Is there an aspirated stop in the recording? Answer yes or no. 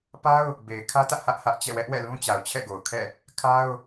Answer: yes